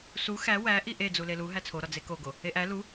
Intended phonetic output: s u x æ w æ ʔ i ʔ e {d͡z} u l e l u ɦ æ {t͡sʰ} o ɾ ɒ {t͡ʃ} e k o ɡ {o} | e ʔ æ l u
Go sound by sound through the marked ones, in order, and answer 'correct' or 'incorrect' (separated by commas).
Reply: correct, correct, incorrect, correct